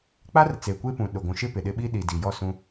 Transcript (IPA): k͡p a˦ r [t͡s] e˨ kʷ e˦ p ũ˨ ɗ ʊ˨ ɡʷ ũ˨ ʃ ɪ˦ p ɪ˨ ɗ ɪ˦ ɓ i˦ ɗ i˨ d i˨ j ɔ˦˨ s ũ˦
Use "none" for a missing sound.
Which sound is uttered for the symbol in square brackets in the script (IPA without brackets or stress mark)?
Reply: t͡s